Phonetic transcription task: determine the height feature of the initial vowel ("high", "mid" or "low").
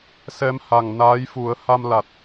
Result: mid